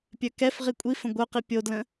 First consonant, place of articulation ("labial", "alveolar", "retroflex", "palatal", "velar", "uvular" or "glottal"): labial